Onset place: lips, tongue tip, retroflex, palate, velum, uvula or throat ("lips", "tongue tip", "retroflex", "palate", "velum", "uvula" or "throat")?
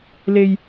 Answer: tongue tip